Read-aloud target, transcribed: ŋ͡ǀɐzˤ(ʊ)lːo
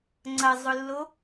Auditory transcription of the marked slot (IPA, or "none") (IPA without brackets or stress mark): ʊ